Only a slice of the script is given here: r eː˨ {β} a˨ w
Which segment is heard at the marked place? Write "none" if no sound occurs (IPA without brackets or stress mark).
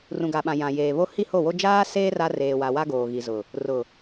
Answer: w